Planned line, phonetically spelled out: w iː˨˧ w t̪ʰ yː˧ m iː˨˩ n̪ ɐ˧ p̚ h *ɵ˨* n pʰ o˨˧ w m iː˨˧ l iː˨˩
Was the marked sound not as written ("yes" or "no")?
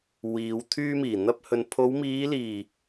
no